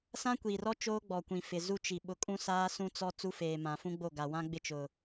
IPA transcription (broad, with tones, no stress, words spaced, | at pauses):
sã˦kʷiː˨rɔ˦ t͡ʃoː˦ɡ͡bɔ˨kʷĩ˨ fɪ˨zu˦ t͡ʃi˨ ɓʊ˨kʼũ˦saː˦ sũ˦t͡sɔ˦ t͡su˦feː˨mã˨fũ˦ ɡ͡bo˦˨ ɡa˨wã˦ɡ͡bɪ˦˨ t͡ʃʊ˨